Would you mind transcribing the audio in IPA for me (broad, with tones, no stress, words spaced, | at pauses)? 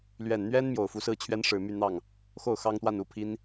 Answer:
lɥɛ˨˩n n̪ɥɛ˥n mjo˨˩ʊ̯fu˧˥sɹ̩˥t͡ɕʰɥɛ˥n ʂɻ̩˨˩my˥˧n̪ɑ˥˩ŋ | xo˥˩ʊ̯ xɑ˥ŋt̪wa˥˧nu˥˩ pʰi˥n